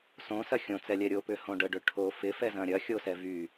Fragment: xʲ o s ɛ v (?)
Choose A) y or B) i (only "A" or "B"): A